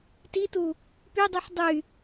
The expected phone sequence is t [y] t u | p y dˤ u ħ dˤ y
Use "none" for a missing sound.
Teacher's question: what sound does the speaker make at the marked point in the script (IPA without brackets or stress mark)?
i